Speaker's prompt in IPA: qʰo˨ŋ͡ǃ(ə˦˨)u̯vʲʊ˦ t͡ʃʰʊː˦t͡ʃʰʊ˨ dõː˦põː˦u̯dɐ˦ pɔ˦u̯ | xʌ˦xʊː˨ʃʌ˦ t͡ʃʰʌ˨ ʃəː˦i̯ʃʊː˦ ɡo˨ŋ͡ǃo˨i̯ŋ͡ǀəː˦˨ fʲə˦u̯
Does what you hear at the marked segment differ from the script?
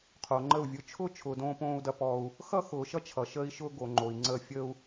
no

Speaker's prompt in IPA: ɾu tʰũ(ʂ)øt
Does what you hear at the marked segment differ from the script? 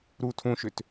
yes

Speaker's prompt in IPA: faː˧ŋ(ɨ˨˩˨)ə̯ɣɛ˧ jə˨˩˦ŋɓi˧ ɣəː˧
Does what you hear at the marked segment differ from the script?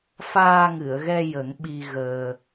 no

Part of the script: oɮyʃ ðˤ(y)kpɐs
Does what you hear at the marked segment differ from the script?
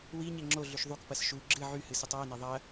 yes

